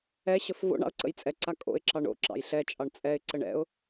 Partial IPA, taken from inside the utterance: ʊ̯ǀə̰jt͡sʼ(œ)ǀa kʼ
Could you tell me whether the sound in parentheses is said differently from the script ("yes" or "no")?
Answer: yes